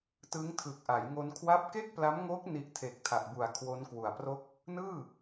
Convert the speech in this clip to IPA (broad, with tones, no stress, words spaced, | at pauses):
tɯ˦˥ŋtʰɯ˨˩k̚ʔa˩˦jŋo˧n kʰwa˦˥p̚ke˥˩k̚pla˦˥mŋo˦˥k̚ ni˦˥ʔtʰe˨˩k̚ tʰa˨˩ʔbu˨˩a̯ kʰwo˦˥nkwu˨˩a̯pro˥˩k̚ | nɯː˥˩